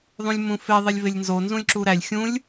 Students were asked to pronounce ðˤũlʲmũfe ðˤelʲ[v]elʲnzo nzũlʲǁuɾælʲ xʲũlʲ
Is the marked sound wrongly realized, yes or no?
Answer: no